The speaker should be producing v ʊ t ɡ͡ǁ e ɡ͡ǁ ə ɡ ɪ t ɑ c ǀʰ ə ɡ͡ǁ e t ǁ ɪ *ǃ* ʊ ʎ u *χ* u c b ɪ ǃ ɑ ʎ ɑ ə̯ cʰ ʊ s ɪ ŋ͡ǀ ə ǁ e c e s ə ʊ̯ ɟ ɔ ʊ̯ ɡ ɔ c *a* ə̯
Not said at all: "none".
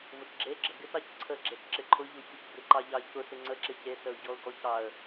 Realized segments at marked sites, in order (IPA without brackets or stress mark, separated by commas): ǃʰ, ç, ɑ